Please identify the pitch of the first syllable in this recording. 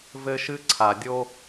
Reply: high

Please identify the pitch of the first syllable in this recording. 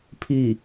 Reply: falling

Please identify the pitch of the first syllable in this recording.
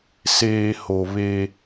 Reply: low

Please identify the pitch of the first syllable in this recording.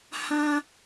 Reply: high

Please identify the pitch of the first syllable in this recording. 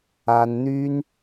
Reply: high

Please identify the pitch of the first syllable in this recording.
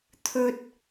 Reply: high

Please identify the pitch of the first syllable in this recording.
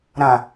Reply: low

